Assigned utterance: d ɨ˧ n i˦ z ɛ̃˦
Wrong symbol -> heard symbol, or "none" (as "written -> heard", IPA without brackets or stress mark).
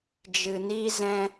d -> d͡ʒ